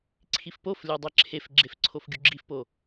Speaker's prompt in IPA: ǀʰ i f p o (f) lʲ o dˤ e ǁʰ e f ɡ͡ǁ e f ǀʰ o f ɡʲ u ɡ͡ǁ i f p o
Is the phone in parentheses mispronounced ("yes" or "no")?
no